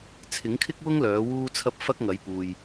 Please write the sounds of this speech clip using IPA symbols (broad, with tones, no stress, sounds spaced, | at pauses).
t͡sʰ ɪ˨˥ ŋ kʰ ɪ˥ k̚ w ʊ˥ ŋ l œː˨˥ w uː˥ t͡sʰ ɐ˥ p̚ f ɐ˥ k̚ ŋ ɐ˨˥ j p uː˨ j